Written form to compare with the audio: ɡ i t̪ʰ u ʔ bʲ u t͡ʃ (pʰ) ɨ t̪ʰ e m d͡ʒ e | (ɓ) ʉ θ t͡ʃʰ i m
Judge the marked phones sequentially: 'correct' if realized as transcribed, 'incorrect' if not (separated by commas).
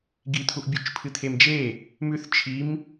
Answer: correct, incorrect